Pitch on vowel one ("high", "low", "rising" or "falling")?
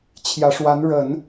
rising